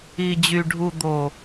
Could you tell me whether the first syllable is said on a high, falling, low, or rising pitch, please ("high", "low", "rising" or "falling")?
low